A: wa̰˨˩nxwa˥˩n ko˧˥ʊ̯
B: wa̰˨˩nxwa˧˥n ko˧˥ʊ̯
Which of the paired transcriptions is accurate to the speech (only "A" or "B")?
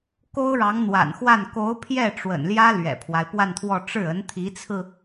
A